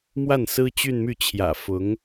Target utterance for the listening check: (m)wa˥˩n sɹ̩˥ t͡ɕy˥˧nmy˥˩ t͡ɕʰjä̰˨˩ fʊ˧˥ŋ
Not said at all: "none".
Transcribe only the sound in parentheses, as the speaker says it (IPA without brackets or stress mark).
m